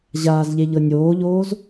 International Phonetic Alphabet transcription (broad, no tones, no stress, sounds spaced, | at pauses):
ʑ aː z ʎ e ʎ ɤ nʲ oː ʎ oː z